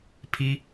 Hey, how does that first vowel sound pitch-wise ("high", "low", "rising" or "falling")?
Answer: high